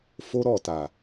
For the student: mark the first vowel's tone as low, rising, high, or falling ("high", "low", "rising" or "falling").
high